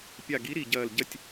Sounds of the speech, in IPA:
pʲ a˧˩ ɡ i˨˥ ɾ i˧˩ ɟ ɐː˧˩ l ɟ ɐ˧˩ tʲ

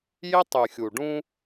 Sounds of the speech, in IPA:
j ɪ˦ tˤ y˨ xʲ u˨ ɖ ũ˦

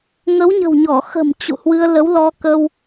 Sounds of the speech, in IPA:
ŋ ə˨˦ w ɲ ə̤˨˩ w ɲ ɔ˧˩ x ə̤˨˩ m t͡ɕ ṵ˧˨ h w ɨ˧ ə̯ l ə˨˦ w l ɔ˧ k ə˧ w

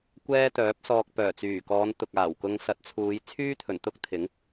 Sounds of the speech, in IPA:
kʷ ɛː˥ t̪ œː˨˥ p̚ s ɔː˧ k̚ p œː˨˩ t͡s yː˨˩ k ɔː˨˧ n t̪ ʊ˨ k̚ aː˨˩ w k ʊ˧ ŋ s ɐ˨˥ t̚ t͡sʰ uː˨˧ j t͡sʰ yː˥ t̪ʰ ɵ˨˩ n t̪ ʊ˥ k̚ t̪ʰ ɪ˨˥ ŋ

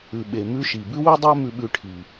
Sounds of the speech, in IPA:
ʉ˩ ɓ e˩ m ʉ˥ ʃ i˩ b ʉ˥ w ʉ˥ dˤ æ˥ m ʉ˧ ɓ ʉ˧ ʈʰ i˩

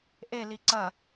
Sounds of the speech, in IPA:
ʔ e l i ǀ ɐ

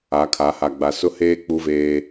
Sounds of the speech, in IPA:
a˨˦ kʰ a˨˦ h a˨ ɡ͡b a˨ s ʊ˦ h eː˦ k͡p u˦ v eː˦

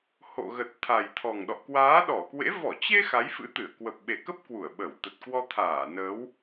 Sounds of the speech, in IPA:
h o̰˧˨ ɣ ə˨˩ t̚ t̪ʰ a˨˩ j t̪ʰ ɔ˨˩ ŋ ɗ ɔ̰˧˨ k w aː˨˦ ɗ ɔ˧˩ k w ḛ˧˥ v ɔ˧˩ t͡ɕ e˧ x a˨˦ j f ɨ̰˧˥ t̪ ɨ˧˩ ə̯ k w ə˨˩ p̚ ɓ e˨˩ k ə˦˥ p̚ k w u˧˩ ə̯ ɓ ə˧˩ w t̪ ə˨˩ t̚ k w ɔ˧ t̪ʰ aː˧˩ n ə˨˦ w

